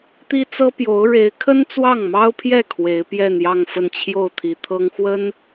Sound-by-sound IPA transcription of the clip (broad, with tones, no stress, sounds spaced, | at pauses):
t̪ i˥ t͡s ɤ˥ p j o˧˥ ʊ̯ ɻ e˧˥ ɪ̯ kʰ ə˥ n t͡s w ɑ˥˩ ŋ m ɑ˥ ʊ̯ pʰ j ɛ˥˩ kʰ w e˧˥ ɪ̯ p j ɛ˥˧ n j ɑ˥˧ ŋ f ə˥˧ n t͡ɕʰ j o˥˩ ʊ̯ t̪ʰ i˧˥ t̪ʰ ɤ˥ ŋ x w ə˥ n